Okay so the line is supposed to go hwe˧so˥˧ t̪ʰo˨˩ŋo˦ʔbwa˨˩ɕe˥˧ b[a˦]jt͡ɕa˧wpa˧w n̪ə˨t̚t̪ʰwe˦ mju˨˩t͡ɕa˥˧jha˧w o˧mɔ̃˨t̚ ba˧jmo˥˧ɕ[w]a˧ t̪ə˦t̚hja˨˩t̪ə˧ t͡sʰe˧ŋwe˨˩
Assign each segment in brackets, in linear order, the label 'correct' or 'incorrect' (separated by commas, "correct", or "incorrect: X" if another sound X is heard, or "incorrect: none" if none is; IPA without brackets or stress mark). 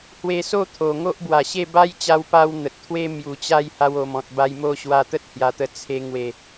correct, correct